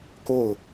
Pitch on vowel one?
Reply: falling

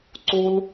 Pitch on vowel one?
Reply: high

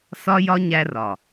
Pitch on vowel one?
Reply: high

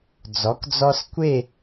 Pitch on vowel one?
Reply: rising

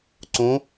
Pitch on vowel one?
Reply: rising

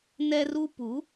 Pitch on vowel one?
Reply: high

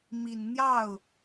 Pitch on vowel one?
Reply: low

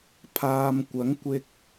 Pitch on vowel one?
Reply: low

